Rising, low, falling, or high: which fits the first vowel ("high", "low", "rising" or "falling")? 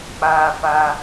high